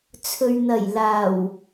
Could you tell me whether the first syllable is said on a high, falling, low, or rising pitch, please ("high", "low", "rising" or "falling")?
low